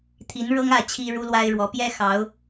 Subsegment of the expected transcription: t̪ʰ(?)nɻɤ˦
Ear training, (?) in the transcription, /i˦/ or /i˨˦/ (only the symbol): i˨˦